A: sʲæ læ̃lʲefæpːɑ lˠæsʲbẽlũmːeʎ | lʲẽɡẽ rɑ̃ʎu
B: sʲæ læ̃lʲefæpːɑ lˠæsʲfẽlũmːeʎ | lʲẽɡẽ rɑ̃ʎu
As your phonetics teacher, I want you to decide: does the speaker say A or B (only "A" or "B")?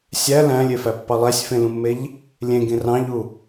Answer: B